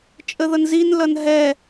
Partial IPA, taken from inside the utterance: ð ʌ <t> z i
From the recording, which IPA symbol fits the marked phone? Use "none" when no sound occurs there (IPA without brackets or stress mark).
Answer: n